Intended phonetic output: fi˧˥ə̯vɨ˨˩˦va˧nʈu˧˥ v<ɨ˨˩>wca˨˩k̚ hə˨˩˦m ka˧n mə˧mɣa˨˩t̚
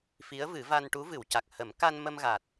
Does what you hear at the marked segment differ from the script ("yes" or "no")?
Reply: yes